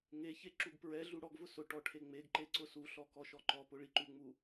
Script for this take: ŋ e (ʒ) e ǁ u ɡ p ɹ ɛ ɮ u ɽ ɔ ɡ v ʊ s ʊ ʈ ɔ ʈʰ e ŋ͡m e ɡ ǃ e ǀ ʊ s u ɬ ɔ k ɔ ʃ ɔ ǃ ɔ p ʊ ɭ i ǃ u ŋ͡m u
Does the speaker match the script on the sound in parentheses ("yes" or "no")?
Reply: no